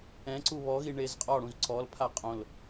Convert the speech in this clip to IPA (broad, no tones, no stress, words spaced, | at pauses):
ɛ̃ǀu βɔɣi ɳezqʼɔɽũz ǀɔlpʰa qʼõl